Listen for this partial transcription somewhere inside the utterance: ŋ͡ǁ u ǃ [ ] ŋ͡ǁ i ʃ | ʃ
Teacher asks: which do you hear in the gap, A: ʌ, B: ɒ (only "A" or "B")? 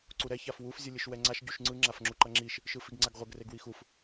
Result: A